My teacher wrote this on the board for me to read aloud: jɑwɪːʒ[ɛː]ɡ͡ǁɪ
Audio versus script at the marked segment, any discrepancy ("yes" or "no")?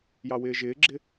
yes